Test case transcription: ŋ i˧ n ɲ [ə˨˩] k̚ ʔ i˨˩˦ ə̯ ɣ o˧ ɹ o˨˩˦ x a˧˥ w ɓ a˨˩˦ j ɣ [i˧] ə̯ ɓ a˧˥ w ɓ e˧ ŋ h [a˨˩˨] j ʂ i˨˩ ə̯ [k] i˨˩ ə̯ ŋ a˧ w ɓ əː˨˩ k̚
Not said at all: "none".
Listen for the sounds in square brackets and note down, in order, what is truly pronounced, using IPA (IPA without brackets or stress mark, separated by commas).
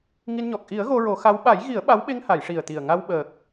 ɔ˨˩, i˨˩˦, a˨˩˨, t̪